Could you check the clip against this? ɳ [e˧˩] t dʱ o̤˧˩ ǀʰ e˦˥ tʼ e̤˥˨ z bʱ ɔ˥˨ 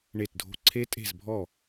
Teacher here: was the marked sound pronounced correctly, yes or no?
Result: yes